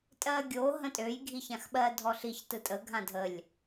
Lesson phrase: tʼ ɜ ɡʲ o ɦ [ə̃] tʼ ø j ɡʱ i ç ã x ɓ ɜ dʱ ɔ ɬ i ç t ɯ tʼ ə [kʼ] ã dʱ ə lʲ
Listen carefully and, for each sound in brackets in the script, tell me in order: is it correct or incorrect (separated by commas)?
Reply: correct, incorrect